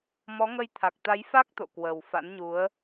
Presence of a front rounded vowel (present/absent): absent